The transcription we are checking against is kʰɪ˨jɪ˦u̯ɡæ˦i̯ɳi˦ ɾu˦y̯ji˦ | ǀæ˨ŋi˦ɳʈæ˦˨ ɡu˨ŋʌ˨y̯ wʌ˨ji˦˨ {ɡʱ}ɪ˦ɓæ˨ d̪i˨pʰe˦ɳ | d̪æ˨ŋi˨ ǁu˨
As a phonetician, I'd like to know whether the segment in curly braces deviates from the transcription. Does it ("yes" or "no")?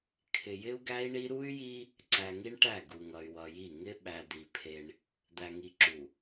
yes